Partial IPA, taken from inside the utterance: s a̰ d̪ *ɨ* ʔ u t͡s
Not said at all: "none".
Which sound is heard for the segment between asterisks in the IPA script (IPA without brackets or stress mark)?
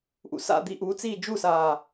i